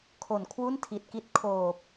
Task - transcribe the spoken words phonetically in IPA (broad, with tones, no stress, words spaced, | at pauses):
kʰo˨˩nkʰwu˥˩ntʰi˨˩t̚ki˦˥t̚ kʰoː˨˩p̚